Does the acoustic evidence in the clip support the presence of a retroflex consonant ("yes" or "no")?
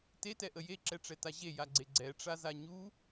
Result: yes